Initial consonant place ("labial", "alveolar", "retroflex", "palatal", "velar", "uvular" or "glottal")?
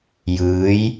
palatal